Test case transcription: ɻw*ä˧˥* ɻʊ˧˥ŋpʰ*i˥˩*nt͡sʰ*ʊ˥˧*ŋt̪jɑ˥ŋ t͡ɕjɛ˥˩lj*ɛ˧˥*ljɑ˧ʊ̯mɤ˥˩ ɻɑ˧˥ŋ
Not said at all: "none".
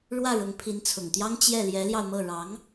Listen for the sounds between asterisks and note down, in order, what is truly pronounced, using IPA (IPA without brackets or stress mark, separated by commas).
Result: ä˥˩, i˧˥, ʊ˨˩, ɛ˧˥